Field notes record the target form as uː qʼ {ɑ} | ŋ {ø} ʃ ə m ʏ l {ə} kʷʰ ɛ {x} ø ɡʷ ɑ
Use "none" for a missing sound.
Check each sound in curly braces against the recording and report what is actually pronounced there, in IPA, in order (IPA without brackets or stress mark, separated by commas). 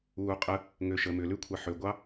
ə, ø, ʉ, ħ